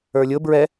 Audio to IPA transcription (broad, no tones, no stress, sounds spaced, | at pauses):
ə˞ lʲ ʊ b ɹ ɛ